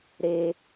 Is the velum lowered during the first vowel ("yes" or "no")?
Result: no